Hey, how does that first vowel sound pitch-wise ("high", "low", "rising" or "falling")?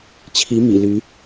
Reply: rising